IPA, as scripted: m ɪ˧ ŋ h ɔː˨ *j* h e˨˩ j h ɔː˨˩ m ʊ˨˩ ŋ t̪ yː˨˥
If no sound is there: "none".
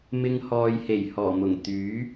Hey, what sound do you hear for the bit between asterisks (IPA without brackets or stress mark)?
j